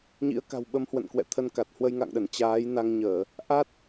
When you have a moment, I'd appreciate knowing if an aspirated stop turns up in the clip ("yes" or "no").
yes